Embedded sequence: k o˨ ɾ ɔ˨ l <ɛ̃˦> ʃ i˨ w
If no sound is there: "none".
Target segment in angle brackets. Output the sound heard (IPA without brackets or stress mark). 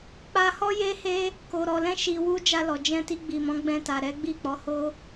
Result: ɛ̃˧